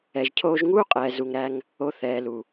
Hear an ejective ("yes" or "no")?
yes